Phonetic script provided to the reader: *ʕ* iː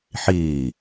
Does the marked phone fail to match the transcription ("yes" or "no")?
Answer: yes